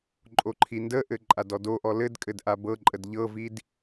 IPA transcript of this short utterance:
ǃʼoǃʰindəʔɘ ǃʼadɔdoʔɔ lɘdkʼɘd ʔabɤǃʼəd ʎɤvid

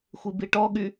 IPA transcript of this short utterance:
xʷibiʈɔɠy

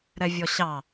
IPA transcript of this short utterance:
ɾɛvʲɔɕɑ

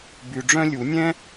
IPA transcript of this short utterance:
by˨ɖ͡ʐœ̃˥lʲu˨˩˦ nʲɛ̃˥

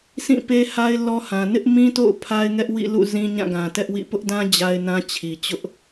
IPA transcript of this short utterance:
sʰĩ˦˨pe˦ha˦ɪ̯ lɔ˦hã˨ nɪ˦ʔmĩ˦to̰˦˨ʊ̯ pʰa˦ɪ̯ŋɛ˦ʔwḭ˦˨lṵ˦˨ zĩ˦ɲã˦˨ ɡã˨tɛ˦ʔwḭ˦˨ pʊ˦ʔdã˦ d͡ʑa˦ɪ̯nã˦ t͡ɕʰi˨t͡ɕʊ˦ʔ

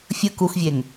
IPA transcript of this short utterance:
fʲɯ kuxvʲeŋ

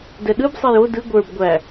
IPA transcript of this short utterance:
dɛɗɯbsˤej o dɯ ɡʷə˞b ɡʷæ

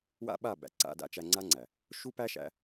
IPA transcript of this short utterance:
wa̰˦ɓa˦˨ bæ̰˨ǀa̰˧ da̰˧t͡ʃæ˧ŋ͡ǀa˦ŋ͡ǀæ˨ | ʃu˦pæ˦ʃæ̰˧

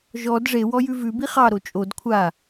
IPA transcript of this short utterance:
ʒɔd ʐewɔ jʉvʉ biχɑ ɾot͡ʃʼod kʷʰa

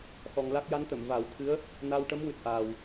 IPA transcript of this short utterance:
xɔ˧ŋla˦˥k̚ ja˧˥nt̪ə˨˩˨m va˨˩˦wt̪ʰɨ˧˥ə̯ | na˧w ʈə˧˥mwɨ˨˩t̚ʔaː˨˩w

